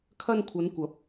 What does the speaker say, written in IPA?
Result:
kʰɐ˧nkʷʰɐ˨˧nkʷɐ˨˥p̚

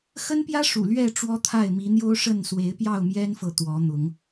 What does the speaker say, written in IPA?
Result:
xə˦npjä˦ ʂṵ˨˩lɥɛ˥˨ ʈ͡ʂwɔ˦t̪ʰa˥˨ɪ̯ mi˨˦n̪jo˦ʊ̯ʂə˥˨n swe˨˦ɪ̯pjɑ˥˨ʊ̯mjɛ˦nfɤ˨ t̪wɔ˨˦n̪ʊ˨˦ŋ

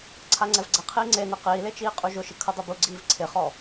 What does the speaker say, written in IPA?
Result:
ǀʰaŋ͡ǀɛvɡ͡ǀɛqʰiː ŋ͡ǀenɛ qiːle t͡ʃiːqʼuʒʊʃɪ kʰʊdˤubuɡ͡ǀiːv ǀʰɪχɔ

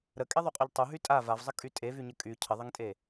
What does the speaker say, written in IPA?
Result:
ɾəkʼeðˤuqʼuʎ tˤuɦy tʼa vavzˤəkʼy tʼevyɲə kʼy cʰəðˤəŋtʼe

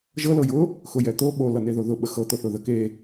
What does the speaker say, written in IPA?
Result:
ʒɤ lɤjʊ | xʊjɛt̪o ɓo lʌneðoðʊ ɓəxɤ t̪oθʊðə ke

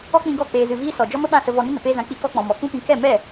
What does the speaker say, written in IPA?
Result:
ɔ˦k͡pĩ˧ɡɔ˦˨ k͡peː˧zɨ˧viː˦ sɔ˨ d͡ʒɔ˦mə˦ɓã˦˨sə˧ vɔ˧nə˦ nə˨peː˦zã˧ k͡pi˦kɔ˦ k͡pɔ̃˨mɔ˨kũ˦pĩ˧ kɛ˦˨mɛ˦˨

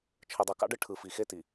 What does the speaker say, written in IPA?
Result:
t͡ʃʰɯ˨dˤɯ˨kɑ̰˦ɖɯ˦ ʈʰɯ˨fi˨xe˦ti˨

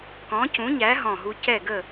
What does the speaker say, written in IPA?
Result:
kɔ̃˨˥cũ˨˥ɲæ˨˥ ɦɔ̃˥˩ɦu˥ cɛ˥˩ɡə˥˩

